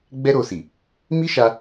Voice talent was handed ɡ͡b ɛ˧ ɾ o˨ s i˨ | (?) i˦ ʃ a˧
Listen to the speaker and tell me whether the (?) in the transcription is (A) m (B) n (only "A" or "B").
A